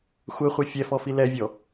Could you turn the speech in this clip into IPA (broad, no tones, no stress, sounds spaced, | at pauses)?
xʷ ɛ χʷ ɛ fʲ ɛ f ɔ f i l ɛ vʲ ɔ